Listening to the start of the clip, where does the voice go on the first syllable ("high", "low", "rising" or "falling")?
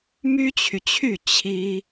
high